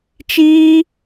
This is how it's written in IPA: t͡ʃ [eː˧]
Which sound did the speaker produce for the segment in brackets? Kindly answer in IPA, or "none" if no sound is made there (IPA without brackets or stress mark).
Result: iː˧